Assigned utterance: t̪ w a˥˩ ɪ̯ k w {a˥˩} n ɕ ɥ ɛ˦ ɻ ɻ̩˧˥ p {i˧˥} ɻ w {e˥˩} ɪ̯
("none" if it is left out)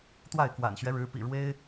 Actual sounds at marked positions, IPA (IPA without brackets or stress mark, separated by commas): a̰˨˩, ḭ˨˩, e˥